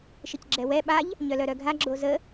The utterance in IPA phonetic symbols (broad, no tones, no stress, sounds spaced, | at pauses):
ʃ ɪ c ɡ͡ǁ ɛ w ɛ ɓ a ʎ | ɲ œ l œ ɾ œ ɡʱ a ɡ͡ǁ o z ə